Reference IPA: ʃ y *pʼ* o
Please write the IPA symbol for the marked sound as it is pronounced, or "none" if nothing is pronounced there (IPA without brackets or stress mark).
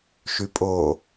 pʼ